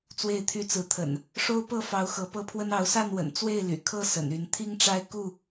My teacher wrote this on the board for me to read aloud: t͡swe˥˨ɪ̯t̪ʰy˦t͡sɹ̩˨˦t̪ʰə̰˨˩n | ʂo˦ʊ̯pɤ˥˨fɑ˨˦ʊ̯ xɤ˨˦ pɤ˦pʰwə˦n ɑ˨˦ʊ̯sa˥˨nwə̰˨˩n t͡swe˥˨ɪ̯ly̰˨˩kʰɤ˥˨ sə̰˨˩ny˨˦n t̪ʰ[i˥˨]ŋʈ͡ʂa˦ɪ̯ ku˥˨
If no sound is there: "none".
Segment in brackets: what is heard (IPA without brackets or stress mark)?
i˦